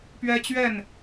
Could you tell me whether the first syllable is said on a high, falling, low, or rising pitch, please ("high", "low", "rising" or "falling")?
high